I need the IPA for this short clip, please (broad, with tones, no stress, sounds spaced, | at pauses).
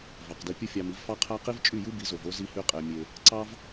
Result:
v ɑ˩ q d i˧ pʲ ɯ˥ fʲ ɑ˧ m i˩˥ v f ɑ˥ qʰ æ˥ q i˥ v t͡ʃʼ y˥˩ j ɯ˥ b i˩˥ z o˩ v o˥ z i˧ h y˧ qʼ e˩ mʲ e˩ | ǀ ɑ˥ v